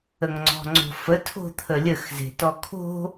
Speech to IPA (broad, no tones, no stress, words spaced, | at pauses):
əŋŋ͡ǀɔ̤ŋ͡ǀo̤fə tʰo̤t̪ʰəlʲəx ze̤tɔkʰo̤